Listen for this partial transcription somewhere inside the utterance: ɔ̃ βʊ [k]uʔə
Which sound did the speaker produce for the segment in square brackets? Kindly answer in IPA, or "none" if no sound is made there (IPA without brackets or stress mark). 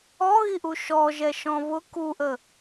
k